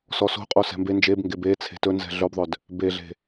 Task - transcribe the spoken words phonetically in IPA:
sɔso̤qʼo sɛ̤mbe nd͡ʒebŋɡeb e t͡sʰe̤tɵnzɛ̤ ɮœbðˤœd | beɮe̤

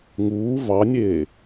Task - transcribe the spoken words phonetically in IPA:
ŋuː vɑnʲeː

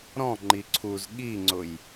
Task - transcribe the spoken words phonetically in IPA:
ɾɔ̃ ŋ͡ǃiǀʰuz ɠiŋ͡ǀʊj

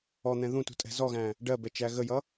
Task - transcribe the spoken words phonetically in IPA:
ɔn̪ɛ̃ ðũtṳtʼɛ̤ zɔɣæ̃ | ɖɜbɛt͡ʃæ ɣəjʌ

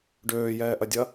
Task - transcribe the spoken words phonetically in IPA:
ɖøːjɛːʔɐdʲɐ

